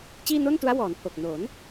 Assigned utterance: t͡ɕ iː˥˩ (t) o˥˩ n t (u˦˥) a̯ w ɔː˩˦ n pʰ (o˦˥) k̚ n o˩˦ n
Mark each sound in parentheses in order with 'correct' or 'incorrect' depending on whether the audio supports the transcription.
incorrect, correct, incorrect

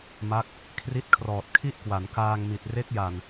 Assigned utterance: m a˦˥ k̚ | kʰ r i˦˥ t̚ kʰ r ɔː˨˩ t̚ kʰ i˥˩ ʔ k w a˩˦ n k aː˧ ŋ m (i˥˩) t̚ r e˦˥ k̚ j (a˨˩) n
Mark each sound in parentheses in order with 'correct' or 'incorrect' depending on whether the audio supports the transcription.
incorrect, correct

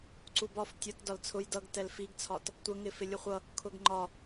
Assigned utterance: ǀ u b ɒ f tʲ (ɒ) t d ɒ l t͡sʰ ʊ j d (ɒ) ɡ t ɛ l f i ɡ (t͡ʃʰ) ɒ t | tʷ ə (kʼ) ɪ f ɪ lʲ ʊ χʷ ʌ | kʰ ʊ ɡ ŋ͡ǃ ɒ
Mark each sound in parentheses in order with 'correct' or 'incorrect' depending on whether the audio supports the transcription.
incorrect, incorrect, incorrect, incorrect

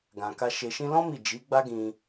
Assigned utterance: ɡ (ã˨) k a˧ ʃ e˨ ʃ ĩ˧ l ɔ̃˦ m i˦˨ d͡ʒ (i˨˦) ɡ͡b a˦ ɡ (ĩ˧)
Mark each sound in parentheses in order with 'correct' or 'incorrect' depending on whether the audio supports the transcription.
correct, correct, correct

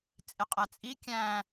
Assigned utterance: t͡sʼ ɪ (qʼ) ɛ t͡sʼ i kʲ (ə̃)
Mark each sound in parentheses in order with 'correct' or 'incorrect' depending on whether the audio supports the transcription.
correct, incorrect

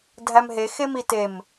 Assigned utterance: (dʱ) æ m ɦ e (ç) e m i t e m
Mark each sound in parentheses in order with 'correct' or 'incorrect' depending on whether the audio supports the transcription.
correct, incorrect

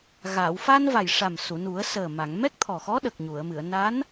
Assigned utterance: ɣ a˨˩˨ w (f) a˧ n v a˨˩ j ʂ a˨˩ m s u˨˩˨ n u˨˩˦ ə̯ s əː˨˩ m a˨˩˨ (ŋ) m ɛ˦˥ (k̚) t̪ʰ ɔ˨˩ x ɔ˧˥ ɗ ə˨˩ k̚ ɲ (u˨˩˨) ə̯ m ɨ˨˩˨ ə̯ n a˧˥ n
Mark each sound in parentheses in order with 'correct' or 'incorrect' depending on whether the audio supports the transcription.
correct, correct, correct, correct

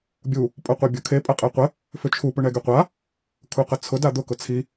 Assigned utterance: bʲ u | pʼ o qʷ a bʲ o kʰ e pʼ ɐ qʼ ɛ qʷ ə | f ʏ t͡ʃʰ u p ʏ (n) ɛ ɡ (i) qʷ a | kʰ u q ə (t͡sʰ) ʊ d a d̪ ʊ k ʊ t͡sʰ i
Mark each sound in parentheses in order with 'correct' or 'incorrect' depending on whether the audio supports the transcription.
incorrect, incorrect, correct

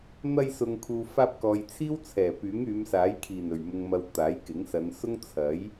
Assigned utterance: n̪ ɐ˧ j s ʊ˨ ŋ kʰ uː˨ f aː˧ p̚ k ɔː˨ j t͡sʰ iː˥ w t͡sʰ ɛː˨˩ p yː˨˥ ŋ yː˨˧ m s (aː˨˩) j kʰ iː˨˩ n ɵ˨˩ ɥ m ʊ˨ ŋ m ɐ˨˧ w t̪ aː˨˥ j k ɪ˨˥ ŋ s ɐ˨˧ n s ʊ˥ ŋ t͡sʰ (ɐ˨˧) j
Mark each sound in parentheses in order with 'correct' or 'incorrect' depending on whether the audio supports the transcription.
incorrect, incorrect

